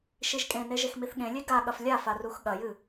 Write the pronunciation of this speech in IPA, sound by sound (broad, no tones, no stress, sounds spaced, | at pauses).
ʃ i ʒ kʼ ẽ n e ʒ e x m i θ ɠ ẽ lʲ e ɡ a ɠ ɐ f lʲ a f a r u x ɠ ɐ j ɨ